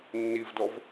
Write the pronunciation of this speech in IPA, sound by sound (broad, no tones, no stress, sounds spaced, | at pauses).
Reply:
nː i v d ɔ v